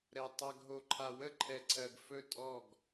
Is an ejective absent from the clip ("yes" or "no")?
no